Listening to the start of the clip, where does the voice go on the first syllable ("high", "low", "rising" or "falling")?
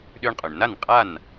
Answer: high